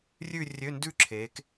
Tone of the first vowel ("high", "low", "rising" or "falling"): falling